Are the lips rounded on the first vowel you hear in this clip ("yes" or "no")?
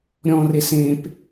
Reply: yes